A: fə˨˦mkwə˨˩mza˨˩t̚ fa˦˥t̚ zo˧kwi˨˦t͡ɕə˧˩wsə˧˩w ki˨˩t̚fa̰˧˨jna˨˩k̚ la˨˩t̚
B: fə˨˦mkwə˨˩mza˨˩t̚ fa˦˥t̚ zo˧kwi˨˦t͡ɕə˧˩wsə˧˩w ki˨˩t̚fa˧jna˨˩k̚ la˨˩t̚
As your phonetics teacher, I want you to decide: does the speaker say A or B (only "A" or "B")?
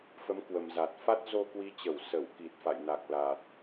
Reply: A